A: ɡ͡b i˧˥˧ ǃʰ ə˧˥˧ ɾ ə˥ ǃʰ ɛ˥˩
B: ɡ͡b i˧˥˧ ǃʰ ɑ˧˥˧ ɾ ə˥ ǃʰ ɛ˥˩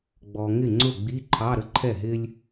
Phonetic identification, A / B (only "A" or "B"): B